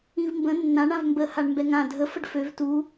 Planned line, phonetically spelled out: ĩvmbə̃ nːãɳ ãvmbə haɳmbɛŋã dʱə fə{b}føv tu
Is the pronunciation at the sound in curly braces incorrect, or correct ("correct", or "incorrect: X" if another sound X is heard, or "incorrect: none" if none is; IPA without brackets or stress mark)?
incorrect: ɖ